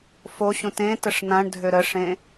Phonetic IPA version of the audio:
foɕũt ẽ təʂn̪ãɳdʱø ɾəʂẽ

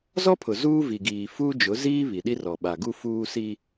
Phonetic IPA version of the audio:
zɔ˦pʰʊ˨ zuː˦vi˨ɡiː˨ fuː˦d͡ʒʊ˨˦ziː˦ βi˨ɗi˦rɔ˨ ɓa˨ɡu˦fuː˦ si˦

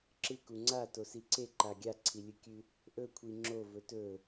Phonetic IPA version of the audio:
ǁɨ kuŋ͡ǀa tosiǀeǃa ɡʲaǀʰilʲɨkʲʉ | ʔɵkʷʰi ŋ͡ǁo vɵtɵ

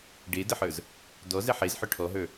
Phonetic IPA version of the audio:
ɖedəħə˞z | dɔzɛ ħezħœ ʈʰɔɦə˞

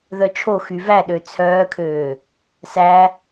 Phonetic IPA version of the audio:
ðœt͡ʃʰo xyvæɗø t͡sʰœːkʰøː | sæ

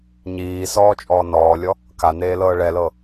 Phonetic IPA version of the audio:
ɲiːsɔː t͡ʃʼɔːnɔːlʲɔ | kaneː lɤːɭɛlɤ

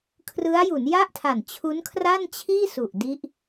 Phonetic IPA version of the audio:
kʰrɯ˦˥a̯ju˩˦nja˥˩ʔtʰa˨˩n t͡ɕʰu˦˥nkʰra˥˩nt͡ɕʰiː˥˩ su˨˩ʔdi˦˥ʔ

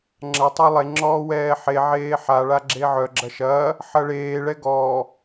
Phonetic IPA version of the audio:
ŋ͡ǁɐ tˤɛlˠe ŋ͡ǁɔːwɛːħe ʕeːħa ɭaɡ͡ǁeʕœ ɡ͡ǁɐʃɐː | ħɐɭeː ɭɛɡɔː

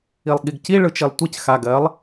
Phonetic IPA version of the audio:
ilˠɠiɡci ɭɯt͡ʃilˠtʷic xa ɡɜlˠ

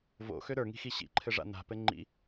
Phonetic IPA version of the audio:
vo̰xø ɾə˞ŋi̤xi ɕḭǃʰɘʐa̰ na̤pɘ ŋ͡ǃḭ

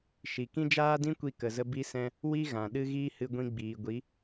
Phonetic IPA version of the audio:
ʃi˨kĩ˦d͡ʒaː˦dĩ˦ kʷi˧kə˨zə˧ bi˦sɛ̃˦ | wi˦ ɣã˨ɗɨ˦ɣiː˦ hɨ˧ɡʷĩ˧ ɡ͡biː˨ɡʷi˨˦

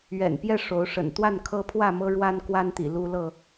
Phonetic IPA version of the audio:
ɥɛ̰˨˩npjɛ˥˨ ʂo˨˦ʊ̯ʂə̰˨˩n t̪wa˥˨n kʰɤ˦pʰwä˥˨mɤ˦ ɻwa˦nkwa˦nt̪ḭ˨˩ lu˦ lɤ˥˨

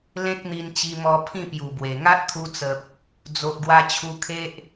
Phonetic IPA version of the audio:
lẽ˦k̚n̪i˧nt͡ɕi˧mɔ˧ pʰĩ˥˧pju˨˩bwe˨˩ ŋa˦t̚t̪ʰu˧t͡sə˨p̚ | d͡zo˨ʔɡwa˧ t͡ɕʰu˧kʰe˦ʔ

